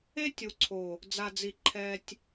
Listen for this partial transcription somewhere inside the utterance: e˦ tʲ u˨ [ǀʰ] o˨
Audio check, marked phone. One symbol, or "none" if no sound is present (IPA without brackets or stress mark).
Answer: ǀʰ